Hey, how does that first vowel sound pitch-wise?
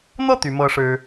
falling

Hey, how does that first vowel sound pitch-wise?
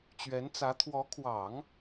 rising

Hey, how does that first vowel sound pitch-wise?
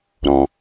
low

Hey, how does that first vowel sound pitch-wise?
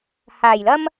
low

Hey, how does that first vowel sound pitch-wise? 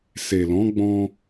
low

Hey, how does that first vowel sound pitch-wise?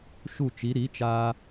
falling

